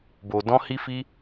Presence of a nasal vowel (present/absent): present